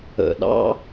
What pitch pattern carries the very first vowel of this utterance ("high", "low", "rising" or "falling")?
low